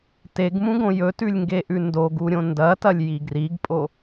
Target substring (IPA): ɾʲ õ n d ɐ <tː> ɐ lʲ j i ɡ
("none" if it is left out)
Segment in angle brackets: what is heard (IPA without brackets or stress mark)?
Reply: t